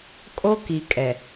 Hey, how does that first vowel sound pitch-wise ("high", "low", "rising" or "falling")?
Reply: high